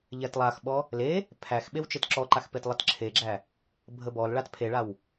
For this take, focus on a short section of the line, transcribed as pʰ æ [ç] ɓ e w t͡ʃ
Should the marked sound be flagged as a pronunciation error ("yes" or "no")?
yes